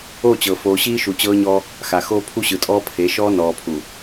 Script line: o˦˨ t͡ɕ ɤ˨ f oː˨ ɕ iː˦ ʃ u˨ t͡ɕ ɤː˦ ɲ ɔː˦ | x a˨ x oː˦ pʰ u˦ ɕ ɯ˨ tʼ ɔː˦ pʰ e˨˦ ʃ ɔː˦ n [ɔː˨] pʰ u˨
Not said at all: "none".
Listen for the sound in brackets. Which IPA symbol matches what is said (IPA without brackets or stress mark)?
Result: ɔː˨